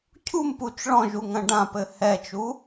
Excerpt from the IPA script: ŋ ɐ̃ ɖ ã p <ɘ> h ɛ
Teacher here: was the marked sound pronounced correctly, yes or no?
yes